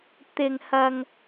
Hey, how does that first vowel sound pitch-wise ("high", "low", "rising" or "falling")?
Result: high